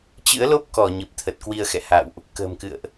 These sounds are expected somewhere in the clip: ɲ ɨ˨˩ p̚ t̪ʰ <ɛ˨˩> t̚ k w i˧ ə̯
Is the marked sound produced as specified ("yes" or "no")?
no